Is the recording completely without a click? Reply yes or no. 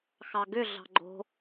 no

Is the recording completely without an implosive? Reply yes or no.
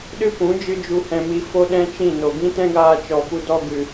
no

